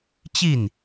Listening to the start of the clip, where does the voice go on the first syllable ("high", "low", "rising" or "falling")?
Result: falling